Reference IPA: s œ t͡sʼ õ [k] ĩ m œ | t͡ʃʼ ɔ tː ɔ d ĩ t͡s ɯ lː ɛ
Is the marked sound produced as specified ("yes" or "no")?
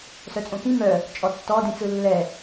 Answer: yes